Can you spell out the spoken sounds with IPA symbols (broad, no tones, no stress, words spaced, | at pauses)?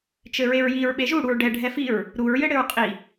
t͡ʃɘɹeɹjiɹ ɓeʒuɽuɹ ɖɛ ɖʱɛfiɹ | ɾuɹjɘ ɽɘɹqʼi